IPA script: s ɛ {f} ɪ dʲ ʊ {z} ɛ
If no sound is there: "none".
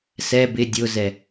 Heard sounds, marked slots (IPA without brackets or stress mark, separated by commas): b, z